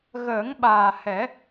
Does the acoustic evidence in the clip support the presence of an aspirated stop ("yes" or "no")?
no